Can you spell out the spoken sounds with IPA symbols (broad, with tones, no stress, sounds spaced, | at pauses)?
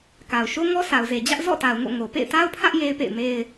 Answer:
k a˨ ʊ̯ ʃ o˦ ŋ ɔ˦ s a˨ ʊ̯ z e˨ d͡ʑ ä˦ ʔ z ɔ̰˦˨ t a˨ ʊ̯ ŋ o̰˦˨ ŋ o˨ p ḛ˦˨ ɪ̯ t a˦ ʊ̯ pʰ ä˦ ʔ j e˦ ɪ̯ p ḛ˦˨ ɪ̯ m e˦ ɪ̯